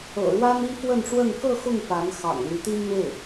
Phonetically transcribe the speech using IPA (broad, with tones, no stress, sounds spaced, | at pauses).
ɤ̰˨˩ ɻ w a˥ n i˥ f w ə˥˧ n ʈ͡ʂ w ə˥˧ n k ɤ˥˧ x ʊ˥˩ ŋ p a˧˥ n x ɑ̰˨˩ ŋ l y˧˥ t̪ i˥ n n̪ w e˥˩ ɪ̯